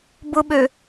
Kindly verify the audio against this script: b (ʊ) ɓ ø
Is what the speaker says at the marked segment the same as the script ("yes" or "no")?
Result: yes